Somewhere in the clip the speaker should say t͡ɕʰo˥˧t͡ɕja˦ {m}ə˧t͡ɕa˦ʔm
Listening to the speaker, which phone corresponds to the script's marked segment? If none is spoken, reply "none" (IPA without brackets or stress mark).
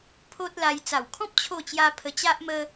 pʰ